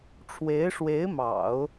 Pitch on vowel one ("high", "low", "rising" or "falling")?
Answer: rising